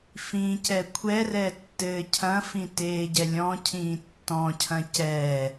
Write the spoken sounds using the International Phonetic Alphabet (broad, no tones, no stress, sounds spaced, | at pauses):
f ĩ c ɛ kʷʰ ɛ r ɛ tː ɘː cʰ ɐ̃ f ĩ t eː ɟ ɛ lʲ ɔ̃ cʰ ĩː tː ɔ̃ cʰ ɐ̃ c ɛ